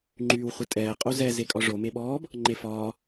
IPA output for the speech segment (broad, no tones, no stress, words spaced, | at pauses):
ŋ͡ǃyːwχʷɨtʼɛː qʼozɛ zekʼɒʐo meɓɔːb | ŋ͡ǃefɒː